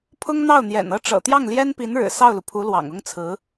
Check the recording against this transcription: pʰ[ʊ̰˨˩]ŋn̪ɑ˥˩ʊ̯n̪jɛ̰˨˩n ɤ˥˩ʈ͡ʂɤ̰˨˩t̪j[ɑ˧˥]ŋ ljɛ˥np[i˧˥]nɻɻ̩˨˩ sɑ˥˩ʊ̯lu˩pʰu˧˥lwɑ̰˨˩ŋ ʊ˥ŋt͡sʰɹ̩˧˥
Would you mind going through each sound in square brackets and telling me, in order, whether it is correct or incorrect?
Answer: incorrect, incorrect, correct

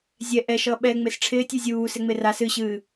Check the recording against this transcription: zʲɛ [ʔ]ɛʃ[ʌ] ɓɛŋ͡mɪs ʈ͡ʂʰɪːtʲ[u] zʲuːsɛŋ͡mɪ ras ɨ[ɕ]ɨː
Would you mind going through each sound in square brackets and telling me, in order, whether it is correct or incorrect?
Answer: correct, correct, correct, correct

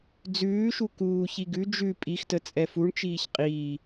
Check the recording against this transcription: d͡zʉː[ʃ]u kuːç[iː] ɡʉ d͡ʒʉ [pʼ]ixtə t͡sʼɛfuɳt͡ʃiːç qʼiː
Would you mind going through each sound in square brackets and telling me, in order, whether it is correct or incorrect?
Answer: correct, incorrect, correct

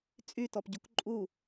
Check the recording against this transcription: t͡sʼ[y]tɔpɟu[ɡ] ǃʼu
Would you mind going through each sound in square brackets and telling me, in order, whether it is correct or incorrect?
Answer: correct, incorrect

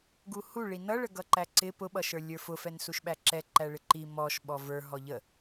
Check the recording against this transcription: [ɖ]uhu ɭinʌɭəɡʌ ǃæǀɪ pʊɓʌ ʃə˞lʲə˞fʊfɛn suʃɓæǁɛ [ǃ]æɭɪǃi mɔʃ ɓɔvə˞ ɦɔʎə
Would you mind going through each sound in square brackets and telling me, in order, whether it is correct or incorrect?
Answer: incorrect, correct

